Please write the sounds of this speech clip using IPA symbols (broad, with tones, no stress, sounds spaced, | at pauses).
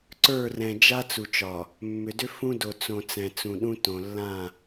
ǀ ə˞˦˨ r ɛ̃˨ d͡ʒ a˦ t͡s u˨ t͡ʃ ɒ˨ | mː ʏ˨ d ʏ˦ f ũ˦ d o˨ t͡s õ˨ t͡s ɛ̃˨ t͡s ũ˨ ɗ ũ˦ t õ˨ lː ã˦˨